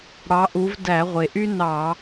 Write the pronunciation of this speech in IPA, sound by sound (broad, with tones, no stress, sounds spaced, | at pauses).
ɽ ɑ˨˦ ʔ u˨˦ v d æ˧˩˧ ʁʷ e˩ ʔ y˥ n ɑ˧˩˧